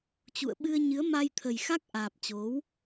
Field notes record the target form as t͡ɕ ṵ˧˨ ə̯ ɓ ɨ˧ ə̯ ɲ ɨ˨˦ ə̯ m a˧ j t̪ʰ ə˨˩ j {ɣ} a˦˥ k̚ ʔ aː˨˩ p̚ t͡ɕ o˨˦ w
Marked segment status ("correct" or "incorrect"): incorrect